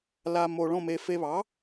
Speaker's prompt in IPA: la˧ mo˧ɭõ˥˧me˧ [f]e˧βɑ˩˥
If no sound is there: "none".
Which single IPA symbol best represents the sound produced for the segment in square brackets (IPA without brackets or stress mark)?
f